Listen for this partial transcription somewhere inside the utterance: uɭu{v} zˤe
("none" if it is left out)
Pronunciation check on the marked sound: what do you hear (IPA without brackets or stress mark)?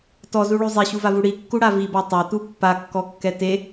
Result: none